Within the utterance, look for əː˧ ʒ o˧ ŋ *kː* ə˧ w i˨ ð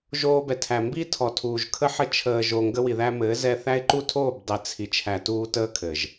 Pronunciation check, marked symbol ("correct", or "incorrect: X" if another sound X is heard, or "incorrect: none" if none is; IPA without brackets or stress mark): incorrect: ɡ